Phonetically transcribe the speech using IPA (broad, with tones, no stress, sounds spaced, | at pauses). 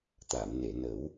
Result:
t̪ a˨˩˨ m n e˨˩˨ n ə˨˩˦ w